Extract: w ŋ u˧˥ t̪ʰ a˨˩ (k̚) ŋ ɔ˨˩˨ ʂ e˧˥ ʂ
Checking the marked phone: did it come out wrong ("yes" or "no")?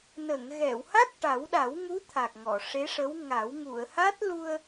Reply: no